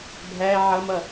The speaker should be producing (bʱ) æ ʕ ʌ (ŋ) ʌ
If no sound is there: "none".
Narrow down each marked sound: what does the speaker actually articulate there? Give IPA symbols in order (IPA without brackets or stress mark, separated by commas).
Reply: bʱ, m